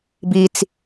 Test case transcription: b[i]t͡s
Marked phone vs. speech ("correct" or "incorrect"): correct